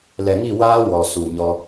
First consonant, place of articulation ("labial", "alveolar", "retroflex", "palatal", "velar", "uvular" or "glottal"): alveolar